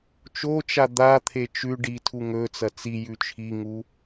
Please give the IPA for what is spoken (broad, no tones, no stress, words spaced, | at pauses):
t͡ʃot͡ʃa d̪at̪ʰe t͡ʃʉ ɖitʰu ŋɵ t͡sɐt͡sijʉ t͡ʃʰiŋu